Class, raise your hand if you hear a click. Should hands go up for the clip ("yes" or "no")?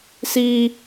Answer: no